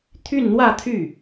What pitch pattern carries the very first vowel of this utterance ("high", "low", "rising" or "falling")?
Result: falling